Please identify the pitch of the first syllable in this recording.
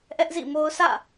high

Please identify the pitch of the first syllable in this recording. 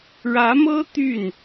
rising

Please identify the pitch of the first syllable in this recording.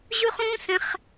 high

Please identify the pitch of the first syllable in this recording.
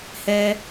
high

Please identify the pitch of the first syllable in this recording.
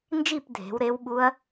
falling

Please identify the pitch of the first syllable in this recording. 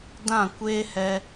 falling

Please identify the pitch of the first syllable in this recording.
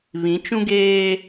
rising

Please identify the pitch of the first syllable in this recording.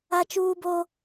high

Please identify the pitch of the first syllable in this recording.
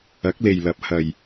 rising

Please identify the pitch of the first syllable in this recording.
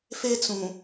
high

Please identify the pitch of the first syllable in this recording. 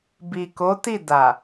low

